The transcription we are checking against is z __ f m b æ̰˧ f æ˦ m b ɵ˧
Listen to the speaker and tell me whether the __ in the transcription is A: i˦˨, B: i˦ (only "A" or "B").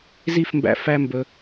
A